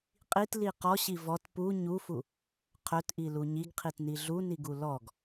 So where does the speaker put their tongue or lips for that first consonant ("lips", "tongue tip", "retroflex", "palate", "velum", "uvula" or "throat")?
uvula